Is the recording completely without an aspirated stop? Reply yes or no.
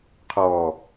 no